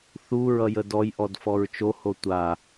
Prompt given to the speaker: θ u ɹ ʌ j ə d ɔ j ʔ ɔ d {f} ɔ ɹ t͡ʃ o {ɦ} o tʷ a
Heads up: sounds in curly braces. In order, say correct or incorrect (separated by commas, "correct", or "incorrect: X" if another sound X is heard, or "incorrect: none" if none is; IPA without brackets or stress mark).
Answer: correct, incorrect: h